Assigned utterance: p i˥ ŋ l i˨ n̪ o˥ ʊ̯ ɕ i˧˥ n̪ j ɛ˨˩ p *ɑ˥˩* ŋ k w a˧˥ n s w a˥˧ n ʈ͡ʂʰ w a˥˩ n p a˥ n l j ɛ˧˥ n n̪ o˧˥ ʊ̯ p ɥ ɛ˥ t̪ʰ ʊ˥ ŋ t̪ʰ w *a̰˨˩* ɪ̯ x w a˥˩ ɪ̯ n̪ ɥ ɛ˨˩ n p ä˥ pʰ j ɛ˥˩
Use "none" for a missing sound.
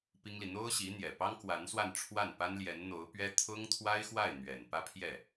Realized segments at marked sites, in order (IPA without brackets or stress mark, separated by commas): ɑ˥, a˥